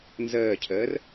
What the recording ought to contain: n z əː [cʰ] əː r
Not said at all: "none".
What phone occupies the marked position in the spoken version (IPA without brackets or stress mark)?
cʰ